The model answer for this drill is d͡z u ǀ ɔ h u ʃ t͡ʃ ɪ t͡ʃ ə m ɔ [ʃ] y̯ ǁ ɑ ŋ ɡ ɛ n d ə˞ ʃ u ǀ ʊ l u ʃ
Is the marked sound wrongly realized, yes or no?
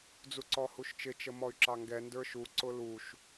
yes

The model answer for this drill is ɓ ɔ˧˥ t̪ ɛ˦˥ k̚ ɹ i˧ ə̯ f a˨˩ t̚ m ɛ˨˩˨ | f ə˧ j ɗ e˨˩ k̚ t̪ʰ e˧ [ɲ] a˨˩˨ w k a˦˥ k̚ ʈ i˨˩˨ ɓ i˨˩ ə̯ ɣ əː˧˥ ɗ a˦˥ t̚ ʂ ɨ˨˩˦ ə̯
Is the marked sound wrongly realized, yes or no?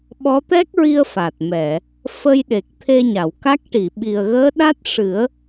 no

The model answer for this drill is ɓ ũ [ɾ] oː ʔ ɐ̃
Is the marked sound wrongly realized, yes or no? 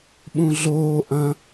yes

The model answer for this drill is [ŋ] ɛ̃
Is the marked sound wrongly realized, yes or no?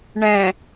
yes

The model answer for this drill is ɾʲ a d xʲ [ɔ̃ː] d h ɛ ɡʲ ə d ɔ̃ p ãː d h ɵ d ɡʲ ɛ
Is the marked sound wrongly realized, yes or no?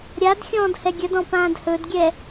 no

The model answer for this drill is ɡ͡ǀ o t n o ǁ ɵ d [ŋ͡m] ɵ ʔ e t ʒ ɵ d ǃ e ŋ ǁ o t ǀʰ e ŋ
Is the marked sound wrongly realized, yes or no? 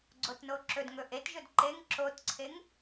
yes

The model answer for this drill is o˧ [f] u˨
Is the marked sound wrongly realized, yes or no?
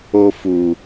no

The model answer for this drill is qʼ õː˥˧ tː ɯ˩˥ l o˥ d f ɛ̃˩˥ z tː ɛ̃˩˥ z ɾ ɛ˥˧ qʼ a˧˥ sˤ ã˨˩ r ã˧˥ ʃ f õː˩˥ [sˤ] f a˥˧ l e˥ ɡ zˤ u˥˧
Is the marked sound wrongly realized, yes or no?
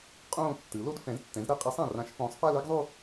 no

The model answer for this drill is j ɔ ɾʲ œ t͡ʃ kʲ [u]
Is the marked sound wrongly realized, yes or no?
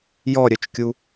no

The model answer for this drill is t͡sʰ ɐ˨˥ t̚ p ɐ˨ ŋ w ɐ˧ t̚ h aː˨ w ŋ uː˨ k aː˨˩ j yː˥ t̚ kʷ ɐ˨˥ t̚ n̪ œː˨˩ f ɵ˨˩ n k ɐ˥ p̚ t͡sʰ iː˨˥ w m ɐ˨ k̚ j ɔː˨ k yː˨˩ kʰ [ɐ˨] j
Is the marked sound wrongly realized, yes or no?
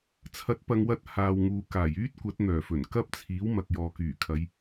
yes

